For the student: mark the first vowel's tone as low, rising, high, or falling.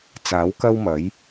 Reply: rising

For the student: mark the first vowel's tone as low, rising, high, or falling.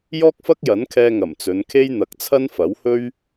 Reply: high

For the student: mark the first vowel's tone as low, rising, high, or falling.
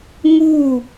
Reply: falling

